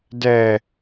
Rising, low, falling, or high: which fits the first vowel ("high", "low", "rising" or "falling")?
low